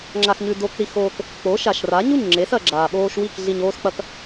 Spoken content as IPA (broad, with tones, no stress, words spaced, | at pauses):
ŋ͡ǁa˧xɲʉ˧ do˧k ɾi˧ xoː˧k | k͡po˨˦ʃa˨ʃra˨˦ɲu˦˨ɲ ŋ͡ǁe˨˦sɐ˨ɡ͡ǁaː˨ ɓoː˧ʃwi˦˨k ɮi˧ɲoː˦sk͡pɐ˦k